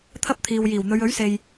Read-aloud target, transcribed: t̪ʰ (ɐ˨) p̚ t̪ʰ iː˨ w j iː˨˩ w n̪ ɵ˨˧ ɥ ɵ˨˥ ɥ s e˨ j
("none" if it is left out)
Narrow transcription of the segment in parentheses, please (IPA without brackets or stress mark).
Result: ɐ˥